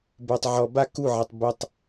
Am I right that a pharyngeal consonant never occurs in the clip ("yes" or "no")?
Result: no